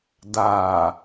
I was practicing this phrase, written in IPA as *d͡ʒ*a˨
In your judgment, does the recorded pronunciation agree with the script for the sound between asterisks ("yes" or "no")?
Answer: no